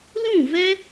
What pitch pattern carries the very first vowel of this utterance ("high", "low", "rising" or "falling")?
falling